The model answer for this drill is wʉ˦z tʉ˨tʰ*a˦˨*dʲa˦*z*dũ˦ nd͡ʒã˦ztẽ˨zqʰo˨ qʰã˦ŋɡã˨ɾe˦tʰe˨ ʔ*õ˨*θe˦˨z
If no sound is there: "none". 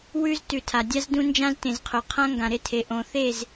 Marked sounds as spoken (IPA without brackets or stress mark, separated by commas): a˨, z, õ˨